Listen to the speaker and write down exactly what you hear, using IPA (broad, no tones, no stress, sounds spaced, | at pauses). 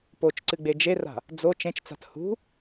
p o t͡ʃ ǀ ɨ ɡ͡b e d͡ʒ e r a̤ | d͡z o t͡ʃ ẽ t͡ʃ t͡s a̤ t h ṳ